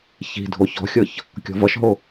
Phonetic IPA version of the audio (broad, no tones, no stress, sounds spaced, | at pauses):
ç i̤ dʱ o ç ɔ̤ xʲ ɤ ç | kʲ ɔ̤ v ʌ ʃ ɦ o